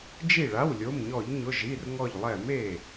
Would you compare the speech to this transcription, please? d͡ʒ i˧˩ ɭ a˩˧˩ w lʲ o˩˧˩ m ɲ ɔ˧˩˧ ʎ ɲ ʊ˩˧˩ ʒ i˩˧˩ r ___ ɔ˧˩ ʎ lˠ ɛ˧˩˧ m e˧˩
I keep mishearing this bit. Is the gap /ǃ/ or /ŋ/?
ŋ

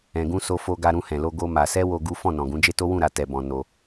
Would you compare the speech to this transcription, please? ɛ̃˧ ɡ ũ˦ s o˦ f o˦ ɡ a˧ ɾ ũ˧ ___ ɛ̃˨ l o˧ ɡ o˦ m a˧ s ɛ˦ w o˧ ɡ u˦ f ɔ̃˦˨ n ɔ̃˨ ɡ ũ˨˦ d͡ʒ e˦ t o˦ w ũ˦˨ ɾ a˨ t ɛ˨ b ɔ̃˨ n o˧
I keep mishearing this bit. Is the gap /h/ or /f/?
h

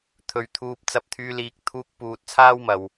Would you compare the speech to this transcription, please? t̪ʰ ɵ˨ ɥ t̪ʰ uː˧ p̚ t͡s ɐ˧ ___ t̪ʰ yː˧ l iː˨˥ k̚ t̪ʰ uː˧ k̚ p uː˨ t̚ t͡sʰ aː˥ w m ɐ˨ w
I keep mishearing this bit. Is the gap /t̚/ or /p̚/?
p̚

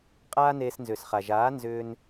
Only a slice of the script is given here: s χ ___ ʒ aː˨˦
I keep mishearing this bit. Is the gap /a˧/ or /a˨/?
a˨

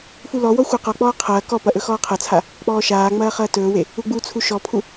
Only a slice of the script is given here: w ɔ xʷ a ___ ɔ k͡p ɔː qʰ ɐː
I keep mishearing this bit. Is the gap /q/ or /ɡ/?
q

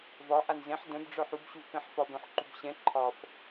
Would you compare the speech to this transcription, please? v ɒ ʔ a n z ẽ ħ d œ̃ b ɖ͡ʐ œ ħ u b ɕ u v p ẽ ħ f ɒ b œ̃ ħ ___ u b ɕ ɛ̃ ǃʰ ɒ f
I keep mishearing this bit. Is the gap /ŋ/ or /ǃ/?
ǃ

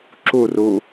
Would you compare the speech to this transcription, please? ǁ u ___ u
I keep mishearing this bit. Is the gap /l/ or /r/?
r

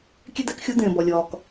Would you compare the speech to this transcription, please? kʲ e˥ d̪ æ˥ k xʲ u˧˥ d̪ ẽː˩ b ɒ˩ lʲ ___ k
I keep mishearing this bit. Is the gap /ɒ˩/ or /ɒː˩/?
ɒː˩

